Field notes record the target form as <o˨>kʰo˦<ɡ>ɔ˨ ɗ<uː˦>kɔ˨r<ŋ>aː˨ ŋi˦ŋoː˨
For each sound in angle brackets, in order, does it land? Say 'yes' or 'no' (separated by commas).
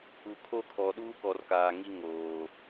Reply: no, no, yes, no